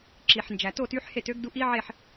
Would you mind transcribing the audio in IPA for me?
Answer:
ǁ i˩ ħ n d͡ʒ æ˩ t o˥˨ t y˧˥ ħ h e˥˨ t ø˧˥ ɡ d u˧˥ ʔ i˧˥ ʕ e˥˨ ħ

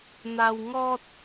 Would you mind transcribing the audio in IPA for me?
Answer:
n̪ a˧ w ŋ ɔ˦ t̚

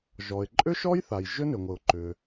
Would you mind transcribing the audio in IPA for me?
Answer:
ʒ ɔ˩ ɪ̯ ǃʼ ʏ˥ ʃ ɔ˥ j θ a˩ j ʒ ʏ˥ n ʏ˩ ŋʷ ɘ˩ ʊ̯ ǃ ʏ˩

